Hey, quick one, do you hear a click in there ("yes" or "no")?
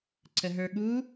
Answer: yes